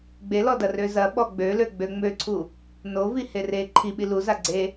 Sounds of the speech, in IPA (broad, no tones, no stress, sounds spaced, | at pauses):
ɡ͡b e l ɔ d ɐ r ø z ɐ ɓ ɔ ɡ͡b ø l ø ɡ͡b ø ŋ͡m ø ǀʰ u | n o v i h e r e ǃʰ i ɓ i l u z a ɡ͡ǀ e